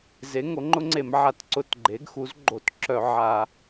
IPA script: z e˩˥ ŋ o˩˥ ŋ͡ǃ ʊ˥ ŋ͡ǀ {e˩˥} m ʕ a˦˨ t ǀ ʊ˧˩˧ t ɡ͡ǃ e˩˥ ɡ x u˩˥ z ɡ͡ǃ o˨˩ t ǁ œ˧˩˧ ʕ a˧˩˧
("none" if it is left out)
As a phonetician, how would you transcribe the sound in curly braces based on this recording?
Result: e˧˩˧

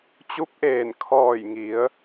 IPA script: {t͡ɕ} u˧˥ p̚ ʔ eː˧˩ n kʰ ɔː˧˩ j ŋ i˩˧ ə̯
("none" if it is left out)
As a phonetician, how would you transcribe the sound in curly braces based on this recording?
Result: t͡ɕ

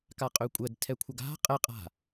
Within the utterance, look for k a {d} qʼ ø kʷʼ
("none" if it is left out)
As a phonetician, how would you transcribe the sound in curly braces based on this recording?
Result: none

